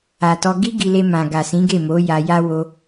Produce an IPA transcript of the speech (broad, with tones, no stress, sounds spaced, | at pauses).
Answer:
a˨ t ɔ˧ ɡ i˦ ɡ i˧ l e˧ m ã˨ ɡ a˨ s ĩ˨˦ ɡ e˦˨ m o˨˦ j a˧ j a˦ w o˧